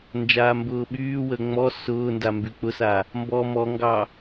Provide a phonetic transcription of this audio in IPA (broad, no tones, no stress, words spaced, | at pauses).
nd͡ʒaːmbʊːɓyːwəː ŋ͡mɔ sʊːnda mbyk͡pʊsa | mbɔ mɔŋɡɑ